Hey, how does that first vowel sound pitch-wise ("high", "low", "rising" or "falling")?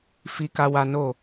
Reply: high